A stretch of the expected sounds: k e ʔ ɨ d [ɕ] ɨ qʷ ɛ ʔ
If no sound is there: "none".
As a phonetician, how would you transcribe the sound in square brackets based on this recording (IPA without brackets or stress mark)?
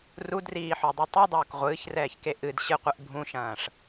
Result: ɕ